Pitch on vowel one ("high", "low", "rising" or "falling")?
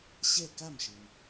falling